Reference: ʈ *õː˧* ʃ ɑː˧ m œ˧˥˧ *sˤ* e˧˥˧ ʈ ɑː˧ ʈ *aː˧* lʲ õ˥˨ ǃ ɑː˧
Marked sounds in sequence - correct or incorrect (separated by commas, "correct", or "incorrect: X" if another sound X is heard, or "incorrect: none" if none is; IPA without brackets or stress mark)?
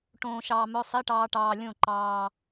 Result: correct, correct, incorrect: ɑː˧